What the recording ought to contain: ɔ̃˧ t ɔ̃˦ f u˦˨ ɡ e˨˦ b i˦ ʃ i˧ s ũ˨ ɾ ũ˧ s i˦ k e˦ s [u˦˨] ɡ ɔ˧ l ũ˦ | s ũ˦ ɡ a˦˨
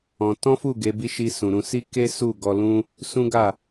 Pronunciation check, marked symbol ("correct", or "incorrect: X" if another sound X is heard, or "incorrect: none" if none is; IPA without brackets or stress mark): correct